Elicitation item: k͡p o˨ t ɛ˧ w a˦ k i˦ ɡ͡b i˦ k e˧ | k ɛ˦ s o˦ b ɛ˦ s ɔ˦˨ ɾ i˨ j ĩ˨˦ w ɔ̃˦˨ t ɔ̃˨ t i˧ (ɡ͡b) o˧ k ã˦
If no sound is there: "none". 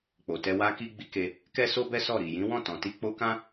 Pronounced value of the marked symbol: k͡p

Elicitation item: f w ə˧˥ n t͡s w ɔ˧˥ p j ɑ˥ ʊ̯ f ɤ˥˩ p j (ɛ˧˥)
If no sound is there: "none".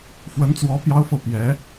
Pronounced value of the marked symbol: ɛ˧˥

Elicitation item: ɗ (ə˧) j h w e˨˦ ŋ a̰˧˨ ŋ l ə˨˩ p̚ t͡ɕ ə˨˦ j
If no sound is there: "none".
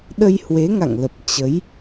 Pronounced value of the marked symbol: ə˧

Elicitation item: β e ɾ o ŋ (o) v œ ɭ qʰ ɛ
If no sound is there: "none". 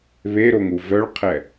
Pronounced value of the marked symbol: u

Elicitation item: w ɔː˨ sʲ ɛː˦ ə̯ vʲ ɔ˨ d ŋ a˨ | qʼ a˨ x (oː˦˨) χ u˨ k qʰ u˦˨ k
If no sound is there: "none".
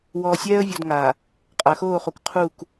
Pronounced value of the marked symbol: oː˦˨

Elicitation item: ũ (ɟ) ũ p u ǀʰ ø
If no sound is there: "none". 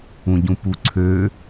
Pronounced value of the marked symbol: ɟ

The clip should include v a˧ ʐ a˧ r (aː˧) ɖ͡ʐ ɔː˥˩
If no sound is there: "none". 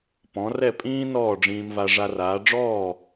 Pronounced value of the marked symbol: aː˩˥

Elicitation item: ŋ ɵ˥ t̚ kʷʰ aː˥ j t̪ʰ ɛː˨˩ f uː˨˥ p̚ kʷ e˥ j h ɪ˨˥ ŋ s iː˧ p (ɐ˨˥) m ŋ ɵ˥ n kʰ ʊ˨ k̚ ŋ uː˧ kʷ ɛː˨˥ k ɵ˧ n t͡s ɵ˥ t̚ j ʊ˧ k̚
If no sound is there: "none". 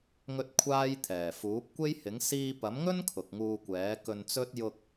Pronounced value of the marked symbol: ɐ˨˥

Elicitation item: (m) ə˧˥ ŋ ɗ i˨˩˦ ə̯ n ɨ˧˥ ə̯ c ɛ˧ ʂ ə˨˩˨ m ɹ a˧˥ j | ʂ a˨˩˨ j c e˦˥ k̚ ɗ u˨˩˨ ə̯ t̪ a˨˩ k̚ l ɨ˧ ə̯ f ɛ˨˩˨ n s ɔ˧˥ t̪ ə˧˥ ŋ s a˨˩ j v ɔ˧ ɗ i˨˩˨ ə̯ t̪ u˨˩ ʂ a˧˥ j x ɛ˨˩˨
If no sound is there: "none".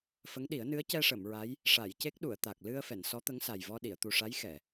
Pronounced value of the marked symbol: f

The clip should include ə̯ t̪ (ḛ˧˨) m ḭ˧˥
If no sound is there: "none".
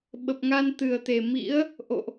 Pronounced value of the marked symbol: e˨˩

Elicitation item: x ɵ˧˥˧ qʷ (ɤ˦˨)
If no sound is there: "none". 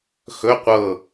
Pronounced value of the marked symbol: ɤ˦˨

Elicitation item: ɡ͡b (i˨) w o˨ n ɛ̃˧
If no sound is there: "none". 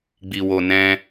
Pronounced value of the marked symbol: i˨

